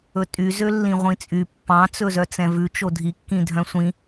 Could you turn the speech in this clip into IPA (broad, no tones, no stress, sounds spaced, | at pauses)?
ɵ tʼ y z ø lː ĩ ʁʷ ĩ t͡sʼ y pː ɑ̃ t͡s ɵ z œ t͡s ɛ̃ v ʉ t͡ʃ o dʱ i kː ĩ dʱ œ̃ sʷ ĩ